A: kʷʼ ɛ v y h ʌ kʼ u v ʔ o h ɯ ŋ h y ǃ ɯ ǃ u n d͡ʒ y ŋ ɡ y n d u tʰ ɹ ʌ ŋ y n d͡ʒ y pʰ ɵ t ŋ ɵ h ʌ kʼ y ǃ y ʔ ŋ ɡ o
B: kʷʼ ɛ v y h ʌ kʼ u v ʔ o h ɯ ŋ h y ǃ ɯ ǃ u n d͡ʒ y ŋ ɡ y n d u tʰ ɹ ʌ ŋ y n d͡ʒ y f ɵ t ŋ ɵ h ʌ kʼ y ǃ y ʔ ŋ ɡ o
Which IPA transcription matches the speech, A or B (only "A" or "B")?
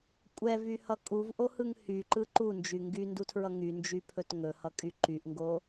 A